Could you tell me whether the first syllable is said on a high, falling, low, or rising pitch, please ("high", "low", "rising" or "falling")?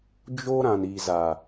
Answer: high